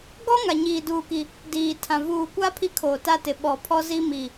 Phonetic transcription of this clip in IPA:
ɡɔ˦ ŋa˨ɲiː˨duː˨ki˨ | diː˨tʰã˨ vuː˨kʷa˦ pʰi˦kʰoː˨ta˦tɪ˨ ɓɔ˨ pʰɔ˦zi˦mi˨

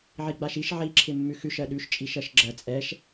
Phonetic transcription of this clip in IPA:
ʕiɡ͡baʃiʃ ʕiǁʰɪ mːʉxʉʃ ɜɗʉʃ t͡ʃʼiʃɜʃɡ͡ǁɜ t͡sʼɛʃ

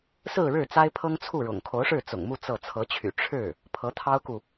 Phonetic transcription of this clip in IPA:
sɹ̩˥˧ɻɻ̩˥˩ t͡sa˥ɪ̯pʰɤ˥ŋt͡sʰu˥˩ɻʊ̰˨˩ŋ kʰo˧˥ʊ̯ʂɻ̩˥˩ t͡sʊ̰˨˩ŋmu˥˧ t͡sɤ˥˩ t͡sʰɤ˧˥t͡ɕʰy̰˨˩ ʈ͡ʂʰɻ̩˥˩ | pʰɤ˧˥t̪ʰɑ˥ʊ̯ku˨

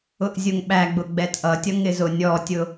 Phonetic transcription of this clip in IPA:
ʊʔzʲʊŋɓæɡ͡bʊ ɡ͡bɛtʔʌtʲʌ ŋɪzʊnʲɔtʲʊ

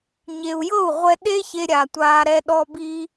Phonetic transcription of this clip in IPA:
ɲe˨u̯jɤ˦˨u̯ʁʷɛ˧ ɗe˦ çe˧ɾʲa˨ tʷaː˧ɾɛ˦ɗɔ˦ bi˧

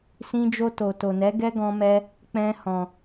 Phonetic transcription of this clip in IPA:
sĩ˧d͡ʒo˧ to˨to˨nɛ˨˦ ɡɛ˦ɡɔ̃˧mɛ˧ | k͡pɛ̃˧hɔ̃˨

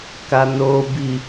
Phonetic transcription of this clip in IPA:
kanobi

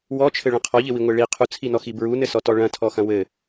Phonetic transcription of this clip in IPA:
wɔt͡ʃʰɘɭɐ̃ qʰɔʎɘwiŋʷe ɭi qʰut͡sʰinɔxi bɹunɘsɔtɔ ɭɐ̃tʰɔxɐ̃ wɘ

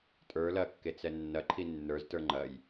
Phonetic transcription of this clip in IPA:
tʼə˞ lɐkːet͡sɛ nːɐǃʰi nːə˞ztə˞ ŋ͡ǃɐj

